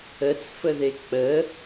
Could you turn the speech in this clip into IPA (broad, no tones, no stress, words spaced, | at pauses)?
ət͡sfəðe k͡pə